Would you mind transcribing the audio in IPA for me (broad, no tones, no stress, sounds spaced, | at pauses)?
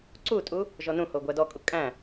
ǀ u tʼ u | ʒ ɔ n ũ h o ɡʷ æ d ɔ kʼ u kʼ æ̃